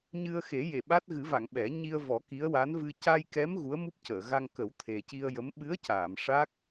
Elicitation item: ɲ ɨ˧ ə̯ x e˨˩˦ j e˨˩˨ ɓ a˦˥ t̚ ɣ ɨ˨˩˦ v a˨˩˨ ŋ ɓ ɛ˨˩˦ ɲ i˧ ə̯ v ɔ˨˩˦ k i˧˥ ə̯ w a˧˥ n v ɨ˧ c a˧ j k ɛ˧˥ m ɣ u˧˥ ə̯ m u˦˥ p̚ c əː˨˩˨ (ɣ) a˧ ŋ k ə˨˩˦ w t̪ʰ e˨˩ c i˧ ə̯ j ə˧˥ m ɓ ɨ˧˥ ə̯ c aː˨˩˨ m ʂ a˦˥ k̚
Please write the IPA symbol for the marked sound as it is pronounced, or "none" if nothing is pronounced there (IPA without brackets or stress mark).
ɣ